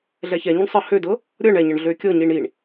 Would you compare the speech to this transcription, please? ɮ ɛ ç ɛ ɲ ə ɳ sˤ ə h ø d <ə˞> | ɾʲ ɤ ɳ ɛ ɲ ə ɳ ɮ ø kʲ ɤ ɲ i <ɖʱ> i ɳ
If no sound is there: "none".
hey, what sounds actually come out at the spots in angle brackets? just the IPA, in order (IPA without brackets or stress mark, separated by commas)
ɤ, ɳ